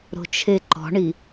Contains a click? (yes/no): yes